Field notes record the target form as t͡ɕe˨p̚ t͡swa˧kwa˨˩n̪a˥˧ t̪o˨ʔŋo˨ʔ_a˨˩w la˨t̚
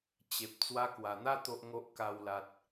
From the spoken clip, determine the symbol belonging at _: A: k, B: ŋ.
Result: A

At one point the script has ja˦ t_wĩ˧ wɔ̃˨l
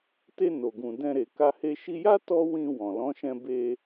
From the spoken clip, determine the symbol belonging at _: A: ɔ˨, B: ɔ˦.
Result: B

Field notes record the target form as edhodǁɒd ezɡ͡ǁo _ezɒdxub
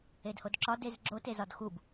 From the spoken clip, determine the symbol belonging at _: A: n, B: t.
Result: B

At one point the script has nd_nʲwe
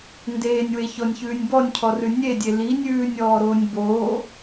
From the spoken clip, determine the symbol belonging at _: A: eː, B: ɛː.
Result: A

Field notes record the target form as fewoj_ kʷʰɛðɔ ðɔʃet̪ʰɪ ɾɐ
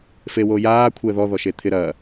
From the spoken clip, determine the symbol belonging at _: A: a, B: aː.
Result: B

